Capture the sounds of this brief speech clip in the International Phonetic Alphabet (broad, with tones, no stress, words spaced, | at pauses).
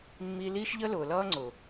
mːi˧liː˦ʃʎə˦ lʊː˨lʌː˦ŋ͡ǀʊː˨